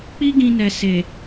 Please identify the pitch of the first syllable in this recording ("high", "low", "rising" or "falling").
high